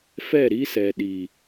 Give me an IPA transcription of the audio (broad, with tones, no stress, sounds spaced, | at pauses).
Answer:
f ɛ˦˨ ɾ i˦ s ɛ˨ ɗ i˨